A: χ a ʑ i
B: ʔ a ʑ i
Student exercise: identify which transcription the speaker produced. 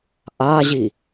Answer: B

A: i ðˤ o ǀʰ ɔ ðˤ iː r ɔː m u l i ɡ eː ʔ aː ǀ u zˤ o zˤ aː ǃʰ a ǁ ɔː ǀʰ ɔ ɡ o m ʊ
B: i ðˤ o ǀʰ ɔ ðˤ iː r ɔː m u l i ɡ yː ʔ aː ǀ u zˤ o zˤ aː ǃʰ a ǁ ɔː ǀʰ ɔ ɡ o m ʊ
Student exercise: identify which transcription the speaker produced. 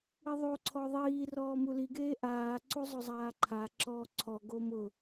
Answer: A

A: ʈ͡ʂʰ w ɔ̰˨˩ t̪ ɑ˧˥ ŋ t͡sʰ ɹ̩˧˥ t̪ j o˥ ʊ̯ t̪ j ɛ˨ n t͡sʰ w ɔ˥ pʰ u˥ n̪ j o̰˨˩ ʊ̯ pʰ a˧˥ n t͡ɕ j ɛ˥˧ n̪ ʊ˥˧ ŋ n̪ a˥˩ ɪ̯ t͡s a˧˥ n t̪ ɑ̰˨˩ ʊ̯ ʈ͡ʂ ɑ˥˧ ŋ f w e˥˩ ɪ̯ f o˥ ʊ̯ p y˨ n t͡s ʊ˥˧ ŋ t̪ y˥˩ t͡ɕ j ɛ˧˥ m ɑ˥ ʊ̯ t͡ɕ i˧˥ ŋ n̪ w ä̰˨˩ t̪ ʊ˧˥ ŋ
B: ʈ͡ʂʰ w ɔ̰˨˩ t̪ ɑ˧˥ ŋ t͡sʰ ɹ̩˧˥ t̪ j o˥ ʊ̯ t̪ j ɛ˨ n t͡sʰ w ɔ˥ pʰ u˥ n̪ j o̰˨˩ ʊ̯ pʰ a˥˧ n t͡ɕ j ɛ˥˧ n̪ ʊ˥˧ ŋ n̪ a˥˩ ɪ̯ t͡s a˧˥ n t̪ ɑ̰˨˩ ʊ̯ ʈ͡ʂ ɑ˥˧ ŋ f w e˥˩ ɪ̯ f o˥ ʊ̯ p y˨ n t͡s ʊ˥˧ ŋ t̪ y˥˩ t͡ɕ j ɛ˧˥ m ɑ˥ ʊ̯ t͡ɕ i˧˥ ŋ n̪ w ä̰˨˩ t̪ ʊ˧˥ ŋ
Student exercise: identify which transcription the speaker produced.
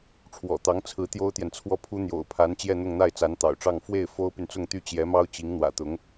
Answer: A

